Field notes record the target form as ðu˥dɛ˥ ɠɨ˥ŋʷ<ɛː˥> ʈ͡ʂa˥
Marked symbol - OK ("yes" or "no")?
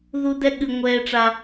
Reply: yes